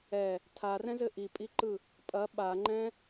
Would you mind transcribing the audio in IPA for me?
ɛ | tʰ a r ɛ̃ z ɘ ʔ i pʼ i ǃ ɯ | pʼ ɐ ɓ a ŋ͡ǃ ɛ̃

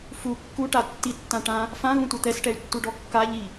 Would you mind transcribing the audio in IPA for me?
f u kː u ʈ a tː i tː ã ʈ ã | f ã ɣ ũ tʷ ɛ t̪ ɛ s ʈ ɛ y̯ tː u ɖ ɔ kː a ʎ i

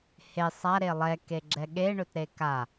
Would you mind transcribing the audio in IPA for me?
h e sˤ a ɾ e lˠ ɛ k e ɡ͡ǁ ɛ ɠ e ɳ ɵ t ɾ e k a

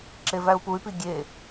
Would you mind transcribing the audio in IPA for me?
ǁ e v æ u̯ p u y̯ p i ɡʲ e

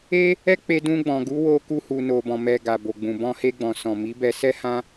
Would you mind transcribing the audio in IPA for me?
e˦ | ɛ˦ k͡p e˧ d ũ˧ ɡ͡b ɔ̃˨ ɡ u˨˦ w o˧ k u˧ h u˨ n o˨ b ɔ̃˨ m ɛ˨ ɡ a˨ b o˨ ɡ͡b ũ˨ b ɔ̃˧ h e˧ ɡ͡b ɔ̃˨ s ɔ̃˨ m i˨˦ b ɛ˧ s ɛ˦ h ã˦

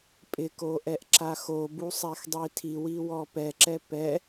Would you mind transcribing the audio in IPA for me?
pʼ ɪ k o ʔ ɛ ʔ ǁ a x o b u sˤ ɛ x dˤ i tʰ i w i w ɔ p ɛ ǁ ɛ p ɛ

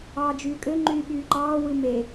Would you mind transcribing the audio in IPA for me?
ɑː d͡ʒ yː kʼ ø ŋ͡ǃ yː ɓ yː ǃ ɑː w ɯ m e

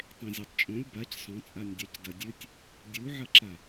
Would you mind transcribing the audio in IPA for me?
tˤ ẽ zʲ o tˤ t͡ʃʼ õ lʲ b a c sˤ õ t͡sʼ a nʲ dʲ a c d ɐ dʲ ɨ tʲ | dʲ u ʕ ɐ ǁ a

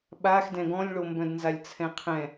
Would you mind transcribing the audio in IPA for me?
ɓ a x d ɛ̃ ɡ ɔ̃ lʲ ɭ o m b œ̃ d n z a lʲ t͡sʰ ɛ̃ qʰ ɛ̃

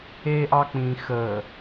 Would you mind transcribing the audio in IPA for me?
e ʔ ɑ k͡p ĩ x ə

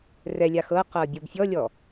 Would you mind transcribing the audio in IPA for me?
r ɛ lʲ a x ɤ q ɤ bʲ ɔ b fʲ ɔ lʲ ɔ

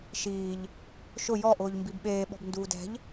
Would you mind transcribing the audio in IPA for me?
ʃ iː ʎ | ʃ ʊ j ɔ ʔ ʊː ʎ m b i b ɓ eː ɓ ɔ̤ b n d uː d ɛ̤ ʎ

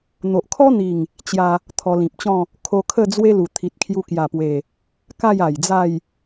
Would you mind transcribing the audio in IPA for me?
n̪ o˨ ʔ kʰ ɔ˦ n̪ i˨˩ ŋ | t͡ɕ j a˧ | t̪ʰ ɔ˧ l ĩ˨ p̚ t͡ɕ ɔ̃˥˧ | kʰ o˧ kʰ ə˥˧ d͡z w e˦ l u˨˩ t̪ʰ i˨ t̚ kʰ j u˧ k j a˨˩ p w e˨˩ | k a˥˧ j a˨˩ j d͡z a˥˧ j

